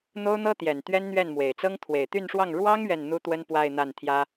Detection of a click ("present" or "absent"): absent